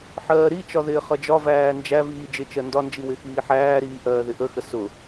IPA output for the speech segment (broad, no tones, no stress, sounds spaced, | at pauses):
ħ ɜː ɾ i t͡ʃ ɒ ð ɪː χ ʌ d͡ʒ ɒ v æː n d͡ʒ æ v iː d͡ʒ ɪ t͡ʃ ɜ n d ɒ n d͡ʒ i w ɪ x iː ħ æː ɾ iː ʔ ɜː ð ɪ ʔ ə x ə s ʊ